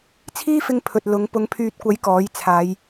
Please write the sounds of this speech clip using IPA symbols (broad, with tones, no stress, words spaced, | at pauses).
t͡sʰiː˥fɪ˧ŋ pʰɵ˨t̚lʊ˨˥ŋ pʊ˨˥ŋpʰyː˨t̚kʷɐ˨˥j kɔː˨˥jt͡sʰaː˨˧j